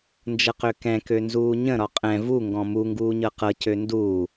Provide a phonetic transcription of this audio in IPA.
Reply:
n d͡ʒ ɤ q ø k ɛ̃ k ø n z uː ɲ ə̃ ɾ ɒ qʼ ɛ̃ v u ŋ ɡ ɔ̃ m u ŋ ɡ uː ɲ ɤ q ɤ c ø n d uː

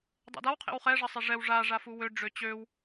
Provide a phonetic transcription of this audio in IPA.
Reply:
dˤ ḛ d a w qʰ ḛ w χ ɛ ʐ ə sˤ e ʐ ɛ w ʐ a ʐ a f u w ø ɖ͡ʐ ø t͡ɕ ø w

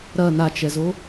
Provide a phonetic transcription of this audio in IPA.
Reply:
ɾ ɐ n a t͡ʃ ɛ z o

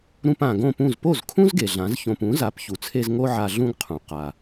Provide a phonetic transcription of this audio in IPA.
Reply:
ɾ ũ˧ p ã˩ ɡ õ˥˩ p ũ˥˩ z p o˥˩ z kʰ ũ˥ z ɡ e˩ ɮ ã˩˥ z ç õ˧ p ũ˩˥ z a˩˥ p ç u˩ t͡sʰ e˧ z ŋ o˥ ʕ a˧ ɮ ũ˥ ɡ qʰ ũ˩ q a˩

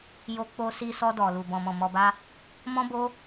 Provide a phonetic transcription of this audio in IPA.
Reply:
j o˧ k͡p o˧ s i˧ s ɔ˧ d ɔ˨ l u˨ b ɔ̃˨ m ɔ̃˨ m ɔ˧ b a˦ | m ɔ̃˦ b o˦

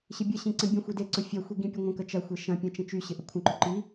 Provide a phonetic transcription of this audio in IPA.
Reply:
ɕ ɪ bʲ ə ɕ ĩ ǀ ə̃ bʲ ə̃ xʷ i d e ǀ ʊ fʲ ɐ xʷ i ɡ ĩ pʲ ʊ ŋʷ ə̃ k ə t͡ʃ ɐ xʷ e ʃ ɐ̃ pʲ ɐ̃ t͡ʃ ə̃ t͡ʃ y ɕ ɪ ʔ ə kʷʰ ə̃ ǃ ʏ ǃ i

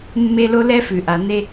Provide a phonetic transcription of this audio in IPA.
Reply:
mː e˥ l o˥ l ɛ˥ f ʉ˩ ʔ a˩ n e˥

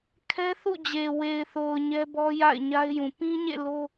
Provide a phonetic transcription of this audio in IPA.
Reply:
kʰ ɛ˦ θ ṵ˦˨ d͡ʑ e˨ w e˨ ɪ̯ θ o˨ ʊ̯ ɲ ɛ˦ b ɔ˦ j a̰˦˨ ɪ̯ ɲ a˦ ɪ̯ j ũ˨ p ĩ˦ ɲ ḛ˦˨ l o˦

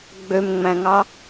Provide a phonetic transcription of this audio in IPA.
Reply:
ɡ͡b ø m ŋ͡m æ̃ ŋ ɑ

